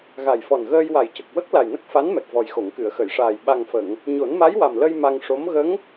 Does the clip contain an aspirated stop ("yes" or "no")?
no